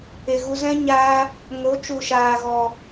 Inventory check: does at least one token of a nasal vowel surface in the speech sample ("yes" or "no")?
yes